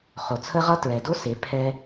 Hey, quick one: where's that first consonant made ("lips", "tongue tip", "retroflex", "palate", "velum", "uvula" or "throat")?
uvula